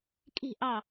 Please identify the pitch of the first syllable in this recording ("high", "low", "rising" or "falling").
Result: falling